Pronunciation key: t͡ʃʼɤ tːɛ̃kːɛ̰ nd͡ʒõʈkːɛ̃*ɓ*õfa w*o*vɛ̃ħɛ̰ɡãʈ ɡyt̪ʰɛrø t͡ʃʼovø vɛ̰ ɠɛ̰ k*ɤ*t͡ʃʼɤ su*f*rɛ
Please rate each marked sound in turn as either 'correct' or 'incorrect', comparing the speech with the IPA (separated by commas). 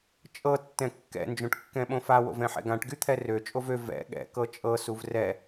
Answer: correct, incorrect, correct, incorrect